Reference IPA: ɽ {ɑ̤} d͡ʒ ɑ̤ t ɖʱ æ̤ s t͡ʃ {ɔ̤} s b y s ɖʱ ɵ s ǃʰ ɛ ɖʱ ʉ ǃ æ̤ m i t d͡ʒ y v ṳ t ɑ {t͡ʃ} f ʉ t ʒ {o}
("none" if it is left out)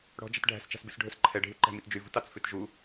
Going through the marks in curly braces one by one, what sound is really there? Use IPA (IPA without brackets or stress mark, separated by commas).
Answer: ɔ̤, ɑ̤, t͡s, u